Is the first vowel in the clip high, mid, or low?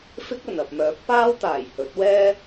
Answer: high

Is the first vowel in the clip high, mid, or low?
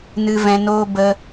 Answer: high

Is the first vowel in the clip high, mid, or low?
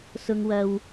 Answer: high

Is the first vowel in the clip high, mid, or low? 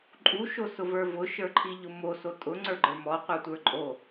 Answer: high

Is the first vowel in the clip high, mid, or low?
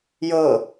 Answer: mid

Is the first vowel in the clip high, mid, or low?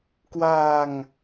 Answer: low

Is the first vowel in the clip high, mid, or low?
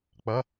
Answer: low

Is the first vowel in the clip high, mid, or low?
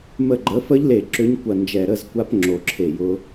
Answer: mid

